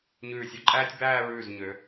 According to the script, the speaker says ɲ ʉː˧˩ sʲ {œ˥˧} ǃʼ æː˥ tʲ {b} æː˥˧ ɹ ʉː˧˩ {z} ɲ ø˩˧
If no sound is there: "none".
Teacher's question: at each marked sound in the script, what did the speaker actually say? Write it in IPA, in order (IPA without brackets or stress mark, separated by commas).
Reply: œ˧, b, z